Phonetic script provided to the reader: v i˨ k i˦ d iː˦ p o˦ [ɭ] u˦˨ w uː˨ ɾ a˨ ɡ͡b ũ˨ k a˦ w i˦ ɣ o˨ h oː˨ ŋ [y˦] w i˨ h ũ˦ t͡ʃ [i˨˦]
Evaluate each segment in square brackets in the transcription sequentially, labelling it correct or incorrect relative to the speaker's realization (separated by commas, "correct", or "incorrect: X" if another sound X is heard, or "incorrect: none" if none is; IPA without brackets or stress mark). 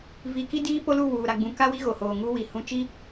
incorrect: l, incorrect: u˦, incorrect: i˦